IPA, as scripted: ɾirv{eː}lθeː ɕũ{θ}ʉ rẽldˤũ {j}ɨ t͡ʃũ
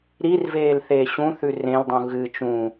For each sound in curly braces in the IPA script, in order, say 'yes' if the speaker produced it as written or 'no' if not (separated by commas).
yes, yes, no